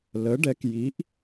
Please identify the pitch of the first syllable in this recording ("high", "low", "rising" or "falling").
rising